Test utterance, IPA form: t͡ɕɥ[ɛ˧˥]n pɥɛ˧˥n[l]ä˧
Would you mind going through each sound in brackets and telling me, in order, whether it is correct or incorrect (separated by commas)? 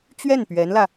incorrect, correct